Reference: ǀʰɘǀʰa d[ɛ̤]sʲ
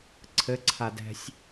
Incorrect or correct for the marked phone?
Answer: correct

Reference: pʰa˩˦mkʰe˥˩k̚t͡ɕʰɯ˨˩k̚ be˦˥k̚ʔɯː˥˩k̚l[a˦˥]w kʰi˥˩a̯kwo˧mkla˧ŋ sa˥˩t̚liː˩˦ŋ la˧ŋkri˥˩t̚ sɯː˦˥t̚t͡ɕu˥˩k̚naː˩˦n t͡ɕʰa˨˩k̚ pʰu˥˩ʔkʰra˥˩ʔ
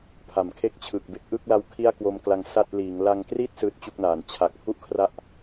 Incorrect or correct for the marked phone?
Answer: correct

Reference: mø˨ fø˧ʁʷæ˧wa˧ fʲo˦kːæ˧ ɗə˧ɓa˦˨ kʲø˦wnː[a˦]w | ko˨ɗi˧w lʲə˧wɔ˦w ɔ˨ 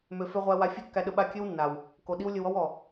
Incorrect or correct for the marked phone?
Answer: incorrect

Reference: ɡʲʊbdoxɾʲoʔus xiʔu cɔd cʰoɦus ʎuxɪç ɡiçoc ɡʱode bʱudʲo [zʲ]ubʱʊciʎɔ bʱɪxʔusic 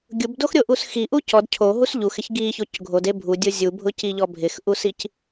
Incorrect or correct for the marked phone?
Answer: correct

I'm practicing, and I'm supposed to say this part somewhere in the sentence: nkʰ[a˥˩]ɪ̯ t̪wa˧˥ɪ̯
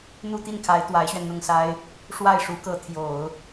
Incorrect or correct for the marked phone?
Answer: incorrect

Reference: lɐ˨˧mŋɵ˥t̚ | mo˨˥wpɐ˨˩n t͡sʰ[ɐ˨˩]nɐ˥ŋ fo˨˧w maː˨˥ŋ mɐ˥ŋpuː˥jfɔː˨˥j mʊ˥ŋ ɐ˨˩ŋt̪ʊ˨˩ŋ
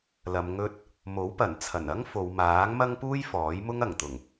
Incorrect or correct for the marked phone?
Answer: correct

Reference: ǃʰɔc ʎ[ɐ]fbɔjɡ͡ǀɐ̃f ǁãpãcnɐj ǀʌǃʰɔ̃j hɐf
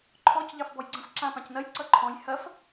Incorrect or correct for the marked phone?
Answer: incorrect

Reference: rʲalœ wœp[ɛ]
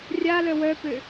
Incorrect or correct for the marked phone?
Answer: incorrect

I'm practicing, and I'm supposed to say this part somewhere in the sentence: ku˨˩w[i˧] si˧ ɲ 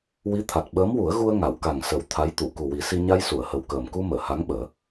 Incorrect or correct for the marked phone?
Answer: incorrect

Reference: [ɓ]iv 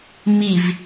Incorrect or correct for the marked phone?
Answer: incorrect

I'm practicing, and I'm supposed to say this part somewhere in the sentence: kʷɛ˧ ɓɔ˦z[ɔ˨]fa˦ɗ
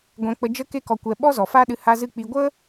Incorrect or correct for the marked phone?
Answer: correct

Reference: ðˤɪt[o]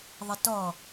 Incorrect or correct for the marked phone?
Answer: incorrect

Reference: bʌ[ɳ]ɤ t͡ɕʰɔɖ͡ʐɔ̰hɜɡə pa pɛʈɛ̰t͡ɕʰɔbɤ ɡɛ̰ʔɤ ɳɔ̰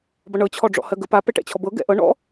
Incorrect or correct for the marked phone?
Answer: correct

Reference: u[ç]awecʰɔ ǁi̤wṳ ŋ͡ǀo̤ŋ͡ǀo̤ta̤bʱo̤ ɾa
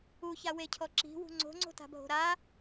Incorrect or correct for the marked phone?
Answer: correct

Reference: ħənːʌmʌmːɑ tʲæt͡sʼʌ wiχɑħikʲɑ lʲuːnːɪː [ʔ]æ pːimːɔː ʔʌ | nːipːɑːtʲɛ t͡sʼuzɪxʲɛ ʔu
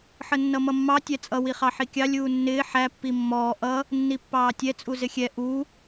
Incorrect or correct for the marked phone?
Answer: incorrect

